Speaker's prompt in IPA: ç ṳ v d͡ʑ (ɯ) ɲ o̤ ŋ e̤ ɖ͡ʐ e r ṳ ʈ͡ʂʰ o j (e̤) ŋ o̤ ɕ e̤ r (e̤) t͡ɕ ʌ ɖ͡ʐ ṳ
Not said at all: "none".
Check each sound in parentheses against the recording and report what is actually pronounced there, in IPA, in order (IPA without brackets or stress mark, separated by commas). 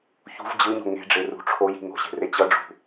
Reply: ɯ, i̤, e